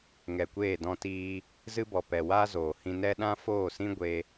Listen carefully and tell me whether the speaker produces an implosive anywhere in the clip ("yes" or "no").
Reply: yes